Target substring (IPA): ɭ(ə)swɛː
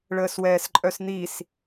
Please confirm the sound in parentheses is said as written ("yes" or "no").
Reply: no